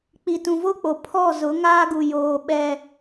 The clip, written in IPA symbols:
k͡p i˨ t ũ˨ v o˦ k͡p o˨ pʰ ɔ˦˨ z ʊ˨˦ ŋ aː˦ ɡ u˨ j oː˨ ɓ ɛ˦

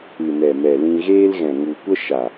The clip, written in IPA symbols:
ɨ˨ n ɛ˨ m ɛ˨ l ĩ˧ ɣ eː˦ l ɣ ɛ̃˨ ŋ u˨ kʷ ə˦ ʃ a˨

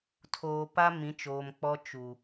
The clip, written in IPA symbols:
tʰ oː˨ p a˦ m ĩ˨˦ t͡ʃ oː˨ m k͡p ɔ˦ t͡ʃ u˨

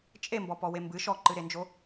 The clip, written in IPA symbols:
t͡ʃʼ e m b ɔ p ɔ w e m b ɨ ʃ ɔ ǃ ɨ ɾ e n d͡ʒ o

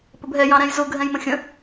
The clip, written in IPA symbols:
p ə b ɦ ɛ j ɑ̃ ɾ ɛ̃ j z ʊ ɡʱ ɛ̃ j m ə̃ xʲ ə̃

